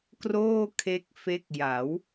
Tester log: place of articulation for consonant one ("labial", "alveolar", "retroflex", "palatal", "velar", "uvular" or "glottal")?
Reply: velar